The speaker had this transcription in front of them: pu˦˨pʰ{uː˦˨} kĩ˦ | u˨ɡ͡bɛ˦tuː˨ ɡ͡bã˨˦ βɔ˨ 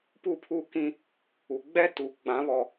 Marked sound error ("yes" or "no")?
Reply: yes